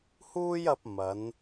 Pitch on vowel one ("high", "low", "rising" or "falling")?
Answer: high